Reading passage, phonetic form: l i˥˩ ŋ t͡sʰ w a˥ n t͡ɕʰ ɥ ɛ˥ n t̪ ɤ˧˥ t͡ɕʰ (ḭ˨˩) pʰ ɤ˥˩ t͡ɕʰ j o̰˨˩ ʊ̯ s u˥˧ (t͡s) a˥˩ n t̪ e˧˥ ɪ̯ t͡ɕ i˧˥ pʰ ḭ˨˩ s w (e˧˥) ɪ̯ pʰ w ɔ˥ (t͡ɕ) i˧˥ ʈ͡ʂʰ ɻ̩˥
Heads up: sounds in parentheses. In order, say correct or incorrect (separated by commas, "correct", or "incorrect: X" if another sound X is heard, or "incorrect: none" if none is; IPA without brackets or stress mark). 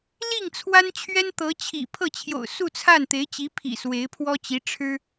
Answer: correct, incorrect: t͡sʰ, correct, correct